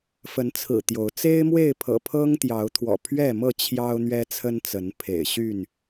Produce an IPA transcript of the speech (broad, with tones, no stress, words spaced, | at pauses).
fə˨˦nt͡sʰɹ̩˨˩ t̪jo˨˦ʊ̯ t͡se˦ɪ̯mwe˥˨ɪ̯pʰɤ̰˨˩ pʰɤ˦ŋt̪jɑ˨˦ʊ̯t̪ʰwɔ̰˨˩ pʰɥɛ˥˨mɤ˥˨ t͡ɕʰjɑ˦ʊ̯n̪ɥɛ˦t͡sʰə˦nt͡sə˨˦n pʰḛ˨˩ɪ̯ɕy˥˨n